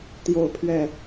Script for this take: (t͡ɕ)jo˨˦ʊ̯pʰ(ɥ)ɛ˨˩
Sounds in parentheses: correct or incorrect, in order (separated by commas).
incorrect, correct